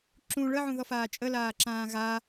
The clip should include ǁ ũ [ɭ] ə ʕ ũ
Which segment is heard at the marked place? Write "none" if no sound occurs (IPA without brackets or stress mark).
ɭ